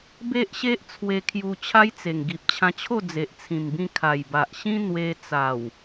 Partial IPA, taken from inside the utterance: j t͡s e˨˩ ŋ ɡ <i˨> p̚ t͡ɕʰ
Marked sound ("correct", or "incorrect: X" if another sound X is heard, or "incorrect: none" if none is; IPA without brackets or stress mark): correct